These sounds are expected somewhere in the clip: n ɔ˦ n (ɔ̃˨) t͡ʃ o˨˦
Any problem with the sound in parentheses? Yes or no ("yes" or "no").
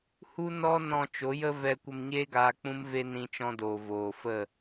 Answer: yes